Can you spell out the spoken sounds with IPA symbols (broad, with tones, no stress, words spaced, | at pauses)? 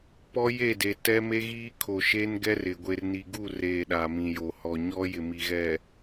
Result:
pɔ˦je˦˨de˨ tɛ˦me˦ɣiː˦ kʰo˨ʃeː˦n ɡɛ˦rɪ˨ ɡʷe˨rni˨ɡu˦˨reː˨ ɗa˨mĩ˨jo˨ hɔ˨ɲɔ˦ jɪ˨mi˨ɣɛ˨